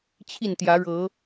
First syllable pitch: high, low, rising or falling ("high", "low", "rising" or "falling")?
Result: falling